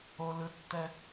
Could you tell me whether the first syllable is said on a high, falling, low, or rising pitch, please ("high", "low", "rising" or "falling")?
high